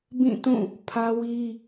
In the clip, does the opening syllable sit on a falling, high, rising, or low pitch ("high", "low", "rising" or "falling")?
falling